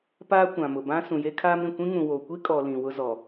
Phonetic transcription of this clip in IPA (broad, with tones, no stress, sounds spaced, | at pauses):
p aː˦ kʷ ã˨ m ʊ˨ b ã˦ s ũ˨ j e˦ kʰ aː˦ m ɾ ĩ˨ kʷ ĩ˦ ŋ ũ˨ w o˨ kʷ i˦ kʼ ɔ˨ l ĩ˨ w ʊ˦ z ɔ˨